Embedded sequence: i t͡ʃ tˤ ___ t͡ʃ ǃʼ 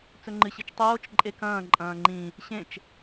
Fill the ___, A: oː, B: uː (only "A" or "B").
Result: A